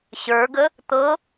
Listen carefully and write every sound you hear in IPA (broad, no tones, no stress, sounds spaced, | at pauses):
ɕ ə˞ ɡ ə | t̪ ɤ